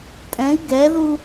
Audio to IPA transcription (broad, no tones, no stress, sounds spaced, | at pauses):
tʼ ɛ̃ i̯ ɡ ɛ ð u